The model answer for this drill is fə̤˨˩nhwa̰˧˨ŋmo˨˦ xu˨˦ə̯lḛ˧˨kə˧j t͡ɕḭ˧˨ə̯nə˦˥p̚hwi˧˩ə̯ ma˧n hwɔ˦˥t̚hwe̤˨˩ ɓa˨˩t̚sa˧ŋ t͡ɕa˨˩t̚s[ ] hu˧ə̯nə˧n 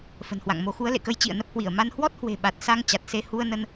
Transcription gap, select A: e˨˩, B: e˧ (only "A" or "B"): B